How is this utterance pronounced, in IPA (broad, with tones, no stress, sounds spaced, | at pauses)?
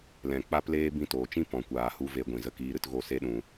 l ɛ̃˨ k͡p a˦ p l eː˦ b ĩ˧ t oː˨ t͡ʃ ĩ˦ p ɔ̃˨ kʷ aː˨ h u˧ v e˧ ɡʷ ĩ˨ z ə˧ k iː˧ ɾ ɨ˧ t ɣ o˦˨ s e˦ ɗ ũ˧